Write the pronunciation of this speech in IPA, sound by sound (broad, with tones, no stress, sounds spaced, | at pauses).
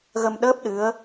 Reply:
ɣ ə˧ m ɗ əː˦˥ p̚ ɗ ɨ˧˥ ə̯